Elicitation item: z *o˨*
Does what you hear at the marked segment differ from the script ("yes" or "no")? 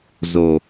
no